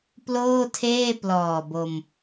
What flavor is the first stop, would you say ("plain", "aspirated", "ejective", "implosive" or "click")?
plain